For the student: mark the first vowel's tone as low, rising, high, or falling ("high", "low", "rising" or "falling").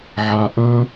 low